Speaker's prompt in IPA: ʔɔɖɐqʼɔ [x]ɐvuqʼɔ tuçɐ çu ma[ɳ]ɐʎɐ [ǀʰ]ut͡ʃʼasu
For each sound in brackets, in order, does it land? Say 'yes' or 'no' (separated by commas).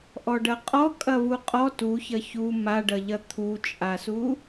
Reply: no, no, no